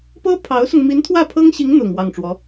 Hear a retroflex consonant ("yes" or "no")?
yes